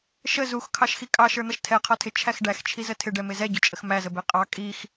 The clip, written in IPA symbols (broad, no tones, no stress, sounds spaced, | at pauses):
ʃ ə z u x kʰ ɑ ʃ x i kʼ ɑ ʃ ə˞ n̪ ʌ ʃ tʰ ɛ qʰ ɔ tʰ ɪ t͡ʃʰ æ x ɖ æ x t͡ʃʰ i z ə tʰ ɪ ɖ ɛ m ɪ z ɛ ɟ ʊ t͡ʃʼ ə x m æ z ə b ɛ qʼ ɑ kʼ i x